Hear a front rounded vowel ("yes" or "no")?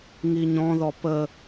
no